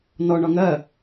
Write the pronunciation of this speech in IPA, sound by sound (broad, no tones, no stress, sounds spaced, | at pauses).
n ɔ ɳ ɒ ŋ ɜ